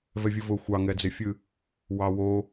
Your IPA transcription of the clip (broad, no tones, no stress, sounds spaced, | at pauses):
v ɛ vʲ ɨ v ʊ xʷ ɑ ŋ ɛ d͡z e fʲ ɨ | w ɑ w o